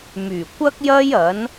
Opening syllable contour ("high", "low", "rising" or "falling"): low